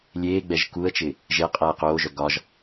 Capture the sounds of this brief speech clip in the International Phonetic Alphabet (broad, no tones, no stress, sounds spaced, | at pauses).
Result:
lʲ eː ɡ͡b ɛ ʒ k u ə̯ t͡ʃ ɪ | ʒ e qʼ ɛː q oː ʒ œ ɡ ɒ ʒ